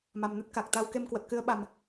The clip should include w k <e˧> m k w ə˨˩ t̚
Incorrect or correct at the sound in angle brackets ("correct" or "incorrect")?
correct